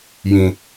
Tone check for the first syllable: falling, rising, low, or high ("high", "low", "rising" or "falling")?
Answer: low